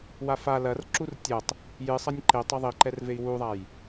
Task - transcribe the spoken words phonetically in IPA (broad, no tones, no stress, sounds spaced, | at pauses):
w a f a l ɐ r ǁ u r tʲ ɐ tˤ | j ɨ sˤ ɐ nʲ ǃ e tˤ ɐ ðˤ i ǃ ɛ r v e i̯ w u ðˤ a j